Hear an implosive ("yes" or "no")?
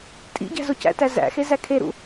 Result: no